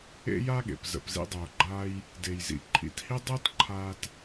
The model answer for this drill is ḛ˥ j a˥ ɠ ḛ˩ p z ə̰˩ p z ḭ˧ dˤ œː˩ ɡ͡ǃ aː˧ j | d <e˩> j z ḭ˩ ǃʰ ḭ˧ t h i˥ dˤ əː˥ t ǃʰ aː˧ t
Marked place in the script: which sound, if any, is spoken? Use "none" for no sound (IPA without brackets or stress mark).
e˩